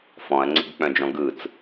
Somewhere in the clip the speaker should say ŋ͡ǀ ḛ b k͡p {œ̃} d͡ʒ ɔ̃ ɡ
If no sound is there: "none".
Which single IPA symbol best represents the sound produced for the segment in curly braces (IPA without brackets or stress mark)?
œ̃